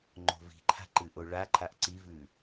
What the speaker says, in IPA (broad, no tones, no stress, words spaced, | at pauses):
ŋ͡ǃo̤vi̤ǃʰa̤ ǃɨʔoɭaǃʰaʔ ǀivʉ